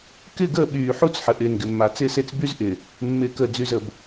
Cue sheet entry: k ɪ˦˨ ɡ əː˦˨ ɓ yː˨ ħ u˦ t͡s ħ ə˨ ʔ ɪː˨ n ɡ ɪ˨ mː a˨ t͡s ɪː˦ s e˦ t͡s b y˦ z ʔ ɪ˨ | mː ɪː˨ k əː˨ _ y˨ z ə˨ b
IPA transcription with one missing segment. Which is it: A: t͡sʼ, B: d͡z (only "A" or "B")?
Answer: B